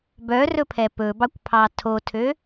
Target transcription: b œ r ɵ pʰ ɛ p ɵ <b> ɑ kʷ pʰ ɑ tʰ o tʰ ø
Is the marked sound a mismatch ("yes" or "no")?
no